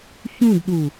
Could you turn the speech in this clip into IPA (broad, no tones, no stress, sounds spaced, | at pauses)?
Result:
ç ũ d ɗ u